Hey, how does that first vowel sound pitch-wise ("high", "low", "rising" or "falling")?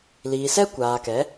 low